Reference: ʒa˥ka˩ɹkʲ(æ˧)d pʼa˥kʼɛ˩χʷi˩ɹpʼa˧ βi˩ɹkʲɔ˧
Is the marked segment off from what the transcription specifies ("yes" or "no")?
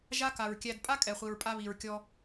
no